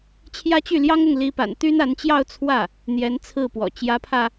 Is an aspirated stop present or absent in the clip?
present